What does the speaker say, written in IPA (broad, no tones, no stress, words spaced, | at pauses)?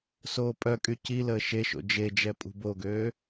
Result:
soːpʼœkʼy ciləː ʃeʃo̰ d͡ʒed͡ʒɛ pʼṳboɡøː